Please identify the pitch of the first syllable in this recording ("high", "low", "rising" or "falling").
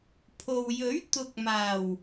low